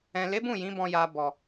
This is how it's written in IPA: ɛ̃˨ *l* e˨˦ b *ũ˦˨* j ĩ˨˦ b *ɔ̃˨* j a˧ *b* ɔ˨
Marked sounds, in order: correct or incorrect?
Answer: correct, correct, incorrect: ɔ̃˧, correct

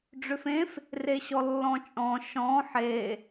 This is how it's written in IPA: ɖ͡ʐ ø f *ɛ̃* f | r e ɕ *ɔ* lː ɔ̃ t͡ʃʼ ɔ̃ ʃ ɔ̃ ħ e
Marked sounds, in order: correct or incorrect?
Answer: incorrect: ẽ, correct

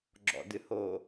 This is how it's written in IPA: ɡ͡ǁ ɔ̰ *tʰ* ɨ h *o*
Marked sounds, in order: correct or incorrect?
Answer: incorrect: d, correct

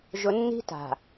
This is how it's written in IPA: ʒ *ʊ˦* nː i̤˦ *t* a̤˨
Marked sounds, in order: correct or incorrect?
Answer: correct, correct

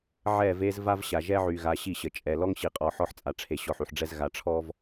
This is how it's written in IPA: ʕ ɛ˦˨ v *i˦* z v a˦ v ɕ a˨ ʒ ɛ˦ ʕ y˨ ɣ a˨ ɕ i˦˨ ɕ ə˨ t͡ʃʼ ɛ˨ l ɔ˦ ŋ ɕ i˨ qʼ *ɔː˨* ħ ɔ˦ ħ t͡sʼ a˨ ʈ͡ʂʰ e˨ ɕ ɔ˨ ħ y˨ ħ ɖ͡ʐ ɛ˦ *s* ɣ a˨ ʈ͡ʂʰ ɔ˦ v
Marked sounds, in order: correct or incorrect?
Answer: incorrect: e˦, incorrect: ɔ˨, incorrect: z

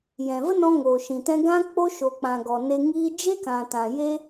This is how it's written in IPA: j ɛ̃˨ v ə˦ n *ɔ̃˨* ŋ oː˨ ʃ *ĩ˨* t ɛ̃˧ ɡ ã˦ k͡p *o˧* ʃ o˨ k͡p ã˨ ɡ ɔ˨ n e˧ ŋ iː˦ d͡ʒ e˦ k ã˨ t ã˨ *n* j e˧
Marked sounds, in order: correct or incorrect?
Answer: incorrect: ɔ̃˧, correct, incorrect: o˦, incorrect: none

